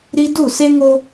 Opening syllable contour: high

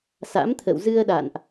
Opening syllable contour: rising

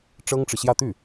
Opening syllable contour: high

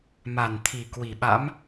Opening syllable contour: low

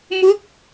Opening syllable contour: falling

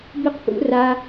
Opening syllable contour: high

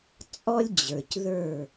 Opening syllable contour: high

